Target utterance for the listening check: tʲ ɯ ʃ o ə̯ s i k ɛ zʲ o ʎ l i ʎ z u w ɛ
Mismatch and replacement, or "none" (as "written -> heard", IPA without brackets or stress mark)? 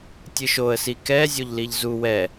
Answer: none